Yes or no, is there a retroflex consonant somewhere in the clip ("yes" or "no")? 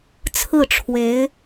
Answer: yes